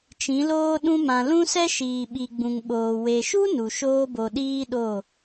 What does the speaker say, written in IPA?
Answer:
t͡ʃĩ˨˦loː˦ɗũ˦mã˧ lũ˦sɛ˦ʃiː˨ ɓi˨ɡ͡bũ˨ŋɓoː˨ we˨ʃu˦ nu˨ʃoː˦bo˧ ɗiː˦ɗo˦˨

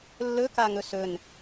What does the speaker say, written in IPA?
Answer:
lːɵkaŋɵ sɵn

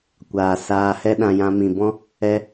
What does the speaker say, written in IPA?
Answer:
kʷaː˨saː˧hɛ˦ɗã˧ jã˧mĩ˨bɔ̃˦ | ɛ˧

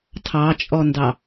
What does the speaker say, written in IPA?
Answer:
tʰɑt͡ʃʼɔndɑ

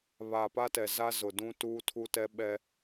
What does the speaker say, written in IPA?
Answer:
βaː˨pa˦tɛ˨ za˦zʊ˨dũ˦ tuː˦tʰu˦tɛ˦ ɓɛ˦

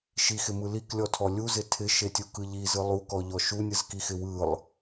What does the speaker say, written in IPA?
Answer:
ʃixɪmɯ liklʲɔtʰɔ lʲuzɪ tʰɪʃetʲukɯ ʎizɯ lˠukɔʎɔ ʃunʲɯzkixɪ wɯlˠ

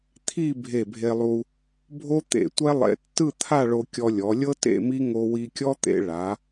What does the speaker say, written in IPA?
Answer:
t̪ʰi˥˧ bʱe˧˩bʱe˧lˠu˧ | bʱo˥t̪ḛ˧˩tʷɛ˥lˠḛ˧ tːɯ˥˧t̪ʰa˥˧ɭo˧ kʲɔ˧lʲɔ˩˧lʲɤ˥ tḛ˥˧mi˥ ŋo˧wi˧kʲɔ˥t̪ḛ˧ ɭa˩˧

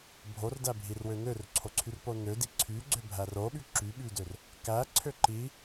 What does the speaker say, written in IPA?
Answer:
bʱordæbʱirwø nørǀʰoǀʰyrpo nødi ǀʰyɡ͡ǀøbʱær oɓy ǁyɓydør | kæǀʰø ǃi

